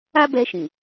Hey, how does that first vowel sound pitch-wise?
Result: high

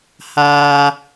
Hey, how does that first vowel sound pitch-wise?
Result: high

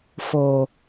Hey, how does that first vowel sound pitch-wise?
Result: low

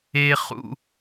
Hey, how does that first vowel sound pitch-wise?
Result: high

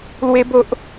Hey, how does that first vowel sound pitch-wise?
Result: high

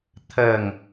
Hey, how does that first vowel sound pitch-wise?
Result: falling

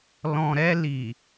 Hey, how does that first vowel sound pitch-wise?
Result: low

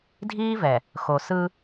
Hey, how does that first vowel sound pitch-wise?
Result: high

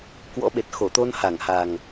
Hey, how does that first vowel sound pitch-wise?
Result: rising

